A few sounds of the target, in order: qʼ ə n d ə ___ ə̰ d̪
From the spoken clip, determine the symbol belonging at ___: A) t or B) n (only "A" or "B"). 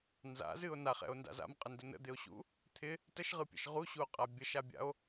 B